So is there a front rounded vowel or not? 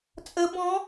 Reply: no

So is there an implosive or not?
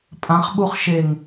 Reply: yes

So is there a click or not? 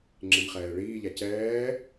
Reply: yes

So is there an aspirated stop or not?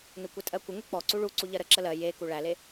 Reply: no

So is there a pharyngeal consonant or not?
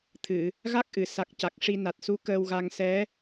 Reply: no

